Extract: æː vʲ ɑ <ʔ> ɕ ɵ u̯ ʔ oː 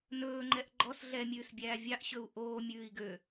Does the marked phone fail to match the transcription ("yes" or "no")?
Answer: no